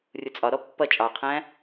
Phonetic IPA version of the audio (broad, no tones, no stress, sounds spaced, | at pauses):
rʲ ʊ t͡sʼ ɒ ɾ ɔ pː ʌ t͡ʃʼ ɑ qʰ æ̃